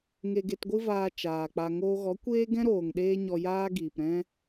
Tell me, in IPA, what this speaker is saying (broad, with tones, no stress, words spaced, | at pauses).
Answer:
ŋe˧ɡe˧tɡʷɨ˦vaː˧ t͡ʃaː˨k͡pa˧ ŋoː˧ɣɔ˨˦ kʷeː˦ɡɛ̃˦ɾoː˨ŋ ɗeː˦ɲɔ˧jaː˦ ɡiː˨pɾɛ̃˦